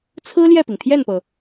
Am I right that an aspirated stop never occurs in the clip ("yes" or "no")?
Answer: no